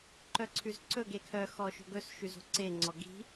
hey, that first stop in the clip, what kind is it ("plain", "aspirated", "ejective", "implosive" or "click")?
click